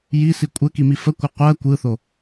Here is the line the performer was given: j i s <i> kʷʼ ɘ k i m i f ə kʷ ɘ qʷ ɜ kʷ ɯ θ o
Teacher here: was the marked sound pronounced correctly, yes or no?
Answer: yes